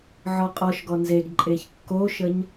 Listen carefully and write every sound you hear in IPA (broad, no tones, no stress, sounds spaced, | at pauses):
ʕ ɔ qʼ ɔ ʃ ɡ ɔ n z e ɡ ǃʼ e ç kː o ʃ ə ɲ